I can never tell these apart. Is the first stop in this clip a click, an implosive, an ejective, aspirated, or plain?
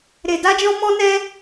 plain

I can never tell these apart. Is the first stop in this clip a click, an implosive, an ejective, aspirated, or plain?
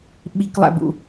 implosive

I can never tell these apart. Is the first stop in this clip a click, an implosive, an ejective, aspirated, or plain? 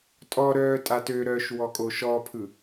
ejective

